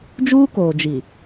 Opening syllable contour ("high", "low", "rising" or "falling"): high